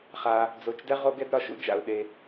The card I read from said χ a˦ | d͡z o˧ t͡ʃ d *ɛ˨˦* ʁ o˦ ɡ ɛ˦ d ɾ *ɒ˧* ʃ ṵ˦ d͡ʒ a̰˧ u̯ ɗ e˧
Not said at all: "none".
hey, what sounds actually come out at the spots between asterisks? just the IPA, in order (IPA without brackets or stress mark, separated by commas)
ɛ˦, ɒ˧